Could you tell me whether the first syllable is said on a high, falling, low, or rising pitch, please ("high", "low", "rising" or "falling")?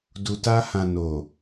low